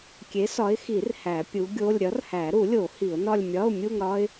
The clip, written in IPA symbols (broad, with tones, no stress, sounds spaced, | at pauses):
kʲ e˨˥ s ɒ˨˥ ɪ̯ x i˨˩˦ r h æ˨˩˦ pʲ u˨˥ ɡʲ o˧˥˧ lʲ ɾʲ ɒ˨˥ r h æ˨˩˦ ɾ u˨˩˦ lʲ o˨˩˦ h i˨˩˦ ʊ̯ n ɒ˥˧ lʲ mʲ ɒ˧˥˧ ʊ̯ mʲ u˥˧ ŋ ɾ ɒ˥ ɪ̯